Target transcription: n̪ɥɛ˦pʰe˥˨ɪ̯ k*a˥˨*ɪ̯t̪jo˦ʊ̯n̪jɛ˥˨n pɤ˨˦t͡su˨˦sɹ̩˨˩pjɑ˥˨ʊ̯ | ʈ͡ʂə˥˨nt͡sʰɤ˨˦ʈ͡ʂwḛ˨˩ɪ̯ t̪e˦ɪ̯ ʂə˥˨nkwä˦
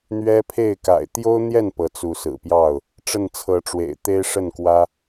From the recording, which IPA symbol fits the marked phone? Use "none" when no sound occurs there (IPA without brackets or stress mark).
a̰˨˩